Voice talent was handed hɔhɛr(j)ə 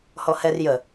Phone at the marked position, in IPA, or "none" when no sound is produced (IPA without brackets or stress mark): j